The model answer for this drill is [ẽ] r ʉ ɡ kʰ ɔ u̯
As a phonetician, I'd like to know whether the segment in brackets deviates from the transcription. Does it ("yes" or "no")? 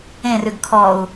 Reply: no